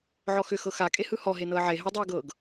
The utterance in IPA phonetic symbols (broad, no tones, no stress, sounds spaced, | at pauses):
ʕ ɔ x ʏ x ɤ x a kʼ e h ɯ h ɔ ɦ e n ɤ ə̯ ʕ e ɦ ʏ dˤ a ə̯ ɡ ɤ ɡ